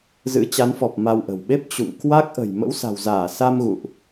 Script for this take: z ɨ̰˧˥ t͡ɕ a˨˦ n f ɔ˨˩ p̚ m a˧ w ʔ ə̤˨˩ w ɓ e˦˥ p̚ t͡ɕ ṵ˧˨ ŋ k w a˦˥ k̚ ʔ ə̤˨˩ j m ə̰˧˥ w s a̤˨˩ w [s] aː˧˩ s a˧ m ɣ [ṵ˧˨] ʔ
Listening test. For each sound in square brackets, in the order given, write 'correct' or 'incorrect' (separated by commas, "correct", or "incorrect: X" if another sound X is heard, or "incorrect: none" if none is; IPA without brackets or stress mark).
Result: incorrect: z, correct